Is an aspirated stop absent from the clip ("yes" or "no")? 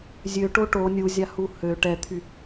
no